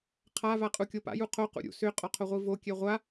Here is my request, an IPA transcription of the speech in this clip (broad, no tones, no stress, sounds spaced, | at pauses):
qʰ a v a qʼ u kʲ o p a̰ j u qʰ o q ṵ ɾʲ ṵ s ʏ qʼ ɔ qʰ o ʁʷ i v o kʲ ɛ ʁʷ a